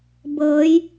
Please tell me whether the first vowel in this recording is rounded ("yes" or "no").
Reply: no